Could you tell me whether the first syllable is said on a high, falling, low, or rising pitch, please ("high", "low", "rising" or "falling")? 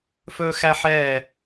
high